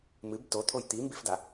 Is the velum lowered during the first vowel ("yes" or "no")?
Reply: no